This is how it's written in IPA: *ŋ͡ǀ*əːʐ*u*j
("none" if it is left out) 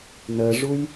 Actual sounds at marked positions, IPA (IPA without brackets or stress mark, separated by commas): n, u